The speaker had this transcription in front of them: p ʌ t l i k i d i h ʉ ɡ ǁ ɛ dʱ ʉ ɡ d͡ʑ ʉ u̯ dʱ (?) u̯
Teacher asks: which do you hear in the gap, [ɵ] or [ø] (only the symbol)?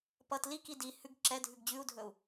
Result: ɵ